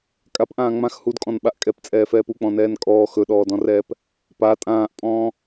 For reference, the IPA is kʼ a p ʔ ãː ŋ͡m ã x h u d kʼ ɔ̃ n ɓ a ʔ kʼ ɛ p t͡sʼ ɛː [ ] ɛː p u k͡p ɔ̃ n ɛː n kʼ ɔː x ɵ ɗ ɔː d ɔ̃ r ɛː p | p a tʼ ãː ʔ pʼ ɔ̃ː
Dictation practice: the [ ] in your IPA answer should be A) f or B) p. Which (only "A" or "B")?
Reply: A